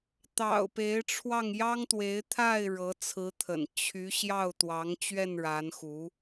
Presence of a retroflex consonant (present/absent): present